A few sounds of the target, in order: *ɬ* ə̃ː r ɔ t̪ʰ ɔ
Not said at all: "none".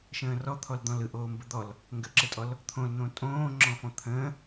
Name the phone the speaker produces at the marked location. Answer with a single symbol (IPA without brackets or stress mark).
ʃ